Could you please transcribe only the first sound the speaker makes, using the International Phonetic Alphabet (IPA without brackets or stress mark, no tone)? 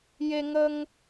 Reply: j